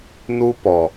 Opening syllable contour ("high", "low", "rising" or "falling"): high